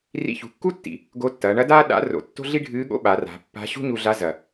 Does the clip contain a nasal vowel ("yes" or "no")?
no